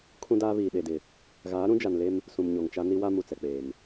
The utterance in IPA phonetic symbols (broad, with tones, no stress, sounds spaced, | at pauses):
kʰ ũ˦ d aː˦ β iː˨ ɗ e˨ d ɪ˨ | ɣ aː˨˦ ɾ ũ˦ d͡ʒ a˨ n l e˦ m | s ũ˨ m ɲ o˨ ŋ t͡ʃ a˦ n i˦ w a˦ m u˨ t͡s ɛ˨ k͡p eː˨ m